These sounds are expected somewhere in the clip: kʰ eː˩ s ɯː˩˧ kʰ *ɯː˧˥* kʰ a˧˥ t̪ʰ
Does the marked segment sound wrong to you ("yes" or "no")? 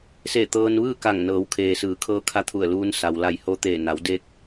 yes